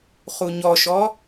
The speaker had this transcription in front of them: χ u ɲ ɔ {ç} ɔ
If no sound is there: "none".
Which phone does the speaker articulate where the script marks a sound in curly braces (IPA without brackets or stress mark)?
ʃ